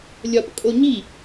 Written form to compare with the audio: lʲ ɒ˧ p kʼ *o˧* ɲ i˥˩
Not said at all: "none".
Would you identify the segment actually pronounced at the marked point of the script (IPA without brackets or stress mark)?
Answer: o˧